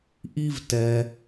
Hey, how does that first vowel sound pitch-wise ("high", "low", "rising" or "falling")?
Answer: high